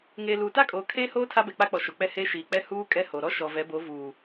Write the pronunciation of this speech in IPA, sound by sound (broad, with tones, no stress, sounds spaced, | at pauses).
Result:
ŋ eː˨ l uː˨ t a˦ kʼ oː˨ kʰ eː˦ h oː˦ tʰ a˦ b ɛ˨ k͡p a˦ k͡p ɔ˨ ʃ o˨ k͡p ɛ˦ h eː˦ ʃ iː˨ k͡p ɛ˦ h uː˦ kʼ ɛ˦ h o˨ ɾ ɔ˦ ʃ ɔ˨ v ɛ˨˦ b o˨˦ v uː˨